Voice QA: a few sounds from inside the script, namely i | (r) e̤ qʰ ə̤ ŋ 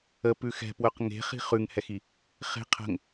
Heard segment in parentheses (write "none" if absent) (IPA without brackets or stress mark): χ